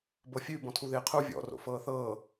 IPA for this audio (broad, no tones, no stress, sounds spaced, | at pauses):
b ɤ fʲ ʉ b ɔ̃ tʰ u ð ɪː qʰ u vʲ ɔ̰ r o̰ f ɤː θ ɤː